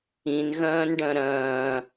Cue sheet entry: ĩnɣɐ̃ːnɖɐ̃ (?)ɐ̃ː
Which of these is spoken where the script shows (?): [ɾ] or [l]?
ɾ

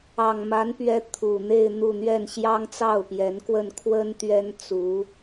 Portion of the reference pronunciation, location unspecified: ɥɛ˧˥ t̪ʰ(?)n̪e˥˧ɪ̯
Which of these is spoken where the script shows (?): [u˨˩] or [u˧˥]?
u˨˩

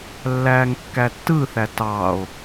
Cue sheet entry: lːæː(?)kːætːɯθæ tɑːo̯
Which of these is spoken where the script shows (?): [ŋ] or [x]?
ŋ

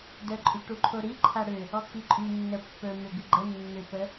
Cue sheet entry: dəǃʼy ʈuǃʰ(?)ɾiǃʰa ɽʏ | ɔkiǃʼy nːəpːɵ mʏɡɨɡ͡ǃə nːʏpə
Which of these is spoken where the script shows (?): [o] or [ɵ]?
o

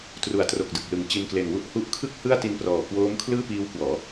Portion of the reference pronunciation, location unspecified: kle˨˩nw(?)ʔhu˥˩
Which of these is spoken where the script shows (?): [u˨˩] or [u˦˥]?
u˦˥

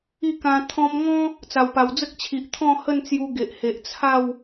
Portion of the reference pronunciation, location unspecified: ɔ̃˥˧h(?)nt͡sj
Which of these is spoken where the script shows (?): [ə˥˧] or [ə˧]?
ə˥˧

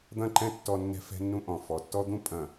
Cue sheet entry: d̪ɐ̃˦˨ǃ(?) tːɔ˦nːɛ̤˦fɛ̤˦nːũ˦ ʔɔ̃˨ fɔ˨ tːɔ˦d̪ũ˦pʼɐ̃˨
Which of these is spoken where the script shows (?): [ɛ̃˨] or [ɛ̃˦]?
ɛ̃˦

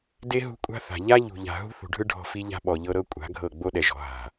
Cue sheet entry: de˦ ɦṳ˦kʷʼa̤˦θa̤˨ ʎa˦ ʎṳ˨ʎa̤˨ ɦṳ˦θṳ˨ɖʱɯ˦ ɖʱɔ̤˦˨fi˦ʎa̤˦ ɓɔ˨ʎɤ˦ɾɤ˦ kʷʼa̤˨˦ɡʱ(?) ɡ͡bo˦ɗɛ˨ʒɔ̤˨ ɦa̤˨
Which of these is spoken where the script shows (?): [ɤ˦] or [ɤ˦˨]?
ɤ˦˨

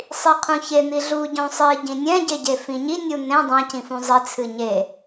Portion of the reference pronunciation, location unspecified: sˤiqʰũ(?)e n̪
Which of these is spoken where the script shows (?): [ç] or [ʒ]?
ç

